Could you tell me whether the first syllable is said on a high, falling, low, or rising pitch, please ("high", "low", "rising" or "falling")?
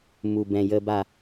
low